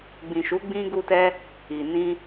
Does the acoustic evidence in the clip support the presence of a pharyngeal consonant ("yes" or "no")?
no